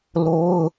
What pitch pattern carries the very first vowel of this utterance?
high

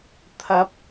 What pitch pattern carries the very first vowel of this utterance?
rising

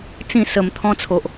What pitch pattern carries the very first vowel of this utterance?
falling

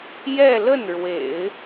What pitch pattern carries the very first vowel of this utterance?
falling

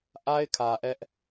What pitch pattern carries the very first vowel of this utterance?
high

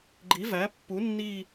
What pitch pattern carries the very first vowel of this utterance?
rising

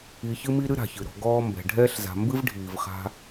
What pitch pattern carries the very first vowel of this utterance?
low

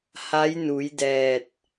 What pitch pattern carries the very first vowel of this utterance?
rising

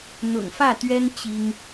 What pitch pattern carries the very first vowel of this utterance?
low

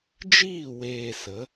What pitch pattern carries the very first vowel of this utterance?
falling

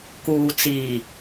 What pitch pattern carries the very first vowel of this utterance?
low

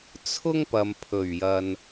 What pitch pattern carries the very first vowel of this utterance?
high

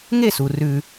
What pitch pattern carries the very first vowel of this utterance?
falling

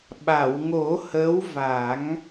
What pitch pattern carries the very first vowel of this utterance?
low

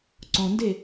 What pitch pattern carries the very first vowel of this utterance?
low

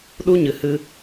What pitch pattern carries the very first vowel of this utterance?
high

